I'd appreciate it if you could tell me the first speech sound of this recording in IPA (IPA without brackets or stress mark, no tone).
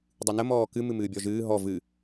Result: dˤ